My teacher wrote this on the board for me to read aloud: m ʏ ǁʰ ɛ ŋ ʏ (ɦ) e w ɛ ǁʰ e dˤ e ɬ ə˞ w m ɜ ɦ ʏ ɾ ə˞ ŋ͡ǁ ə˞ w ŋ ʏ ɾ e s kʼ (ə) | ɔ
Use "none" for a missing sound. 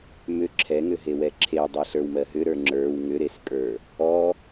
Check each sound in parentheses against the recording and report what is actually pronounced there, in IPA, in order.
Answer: ɦ, ə˞

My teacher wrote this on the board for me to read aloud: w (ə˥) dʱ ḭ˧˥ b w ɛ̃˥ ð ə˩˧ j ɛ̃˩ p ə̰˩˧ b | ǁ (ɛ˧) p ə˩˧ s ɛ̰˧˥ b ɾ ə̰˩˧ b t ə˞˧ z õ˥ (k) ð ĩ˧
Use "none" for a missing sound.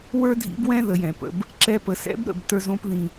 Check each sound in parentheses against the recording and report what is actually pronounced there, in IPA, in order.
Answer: ə˞˥, ɛ˧, p

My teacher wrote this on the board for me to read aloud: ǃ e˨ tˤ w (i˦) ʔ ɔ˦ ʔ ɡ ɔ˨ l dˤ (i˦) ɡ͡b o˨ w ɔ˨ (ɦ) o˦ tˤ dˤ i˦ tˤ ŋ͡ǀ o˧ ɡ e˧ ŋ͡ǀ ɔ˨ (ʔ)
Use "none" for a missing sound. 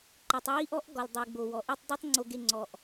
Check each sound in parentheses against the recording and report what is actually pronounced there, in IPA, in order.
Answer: i˦, i˨, ʔ, ʔ

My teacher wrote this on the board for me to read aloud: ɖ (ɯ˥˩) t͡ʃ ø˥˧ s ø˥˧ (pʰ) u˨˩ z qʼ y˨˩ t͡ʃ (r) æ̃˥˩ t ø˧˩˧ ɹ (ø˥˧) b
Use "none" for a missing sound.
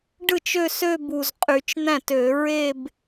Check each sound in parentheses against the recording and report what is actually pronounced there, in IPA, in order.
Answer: ɯ˥˩, b, n̪, e˥˧

